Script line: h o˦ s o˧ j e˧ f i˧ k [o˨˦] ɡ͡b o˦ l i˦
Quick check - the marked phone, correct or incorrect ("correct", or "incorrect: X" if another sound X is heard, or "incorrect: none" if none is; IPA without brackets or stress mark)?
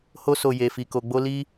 incorrect: o˧